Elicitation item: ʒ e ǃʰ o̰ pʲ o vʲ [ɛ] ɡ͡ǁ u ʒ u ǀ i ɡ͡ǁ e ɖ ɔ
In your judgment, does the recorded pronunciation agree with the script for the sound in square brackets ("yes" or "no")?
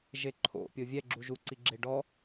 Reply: yes